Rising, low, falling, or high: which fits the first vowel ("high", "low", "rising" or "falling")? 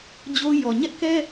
high